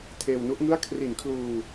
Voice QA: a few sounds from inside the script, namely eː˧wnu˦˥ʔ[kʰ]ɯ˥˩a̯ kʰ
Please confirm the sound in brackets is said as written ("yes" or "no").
no